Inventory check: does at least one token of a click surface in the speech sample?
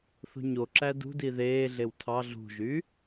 yes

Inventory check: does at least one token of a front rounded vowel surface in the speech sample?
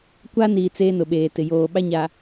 no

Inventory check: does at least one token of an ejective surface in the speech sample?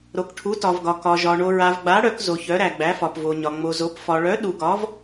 no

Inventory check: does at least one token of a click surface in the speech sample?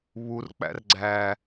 yes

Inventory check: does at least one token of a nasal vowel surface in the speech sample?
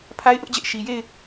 no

